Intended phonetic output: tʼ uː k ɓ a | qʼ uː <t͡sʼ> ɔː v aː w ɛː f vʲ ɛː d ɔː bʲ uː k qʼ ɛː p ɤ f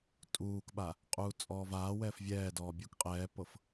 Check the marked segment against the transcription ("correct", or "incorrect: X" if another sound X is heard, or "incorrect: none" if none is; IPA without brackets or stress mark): correct